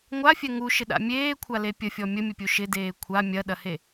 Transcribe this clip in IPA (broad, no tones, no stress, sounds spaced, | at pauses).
ŋʷ a fʲ ɛ ŋ u ʃ ɪ ɗ a̰ mʲ eː kʷʰ a l e pʲ ə fʲ ɔ mʲ ə mʲ ə pʲ u ʃ ɪ d eː kʷʰ a mʲ ɐ ɗ ɐ h e